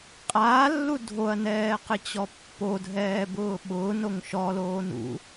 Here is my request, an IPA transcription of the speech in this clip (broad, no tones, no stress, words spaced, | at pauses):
qʼaːlːu dʱoɐ̯nɛː qɪt͡ɕɔpːodʱɛː bʊːɓʊːnoŋ ʃɔloːn ṵ